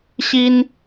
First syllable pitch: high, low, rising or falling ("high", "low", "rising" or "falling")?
high